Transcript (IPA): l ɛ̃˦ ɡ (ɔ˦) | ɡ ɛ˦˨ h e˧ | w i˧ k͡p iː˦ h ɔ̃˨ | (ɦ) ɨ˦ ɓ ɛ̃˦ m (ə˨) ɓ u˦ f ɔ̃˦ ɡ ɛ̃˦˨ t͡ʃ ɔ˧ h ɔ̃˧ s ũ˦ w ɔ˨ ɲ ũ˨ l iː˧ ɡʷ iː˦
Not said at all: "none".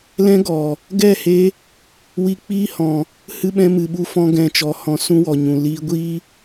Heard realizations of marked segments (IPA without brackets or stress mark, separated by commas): ɔ˨, h, ɨ˨